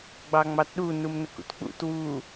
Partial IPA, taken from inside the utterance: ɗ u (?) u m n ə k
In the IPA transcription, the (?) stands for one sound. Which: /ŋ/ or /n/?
n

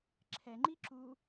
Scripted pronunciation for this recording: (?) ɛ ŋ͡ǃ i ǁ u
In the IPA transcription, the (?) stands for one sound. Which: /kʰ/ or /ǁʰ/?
ǁʰ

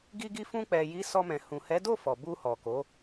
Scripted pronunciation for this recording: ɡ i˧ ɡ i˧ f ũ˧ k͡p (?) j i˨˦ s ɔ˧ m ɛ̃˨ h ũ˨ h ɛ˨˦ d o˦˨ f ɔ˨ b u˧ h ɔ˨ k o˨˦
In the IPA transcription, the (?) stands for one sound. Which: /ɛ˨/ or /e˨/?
ɛ˨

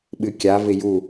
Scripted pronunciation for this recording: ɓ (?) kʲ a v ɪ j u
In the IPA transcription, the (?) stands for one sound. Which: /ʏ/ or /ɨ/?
ɨ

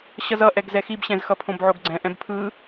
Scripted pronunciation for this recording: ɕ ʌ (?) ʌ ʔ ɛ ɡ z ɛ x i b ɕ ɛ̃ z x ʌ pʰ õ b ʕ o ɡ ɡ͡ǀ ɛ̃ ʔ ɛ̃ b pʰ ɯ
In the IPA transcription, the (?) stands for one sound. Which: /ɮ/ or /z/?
z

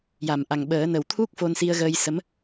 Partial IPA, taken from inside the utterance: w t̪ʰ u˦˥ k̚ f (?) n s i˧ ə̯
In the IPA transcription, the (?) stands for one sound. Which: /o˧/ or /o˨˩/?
o˧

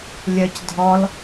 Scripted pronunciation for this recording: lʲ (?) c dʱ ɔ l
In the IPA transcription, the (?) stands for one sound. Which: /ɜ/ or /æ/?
ɜ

